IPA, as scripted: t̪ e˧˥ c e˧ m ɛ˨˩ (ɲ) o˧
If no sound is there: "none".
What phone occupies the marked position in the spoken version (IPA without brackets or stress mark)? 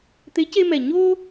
ɲ